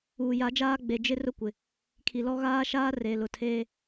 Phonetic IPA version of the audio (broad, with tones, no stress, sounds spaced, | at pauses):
uː˨ j a˨˦ d͡ʒ aː˦ ɡ͡b e˨ d͡ʒ ɪ˦ r ʊ˦ kʷ ɪ˨ | kʰ i˨ l ɔ˦ ɣ aː˦ ʃ aː˦ r e˨ l ʊ˨ tʰ eː˦